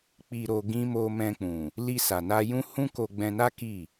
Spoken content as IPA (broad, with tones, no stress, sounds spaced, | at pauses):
k͡p i˧ ɾ o˧ ɡ ĩ˦ m o˧ m ɛ̃˧ k͡p ũ˨ | l i˧ s a˨ n a˧ j ũ˦ h ũ˦ k o˧ ɡ͡b ɛ̃˧ n a˦ k i˦˨